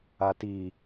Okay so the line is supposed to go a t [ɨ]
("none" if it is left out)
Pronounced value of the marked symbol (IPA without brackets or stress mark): i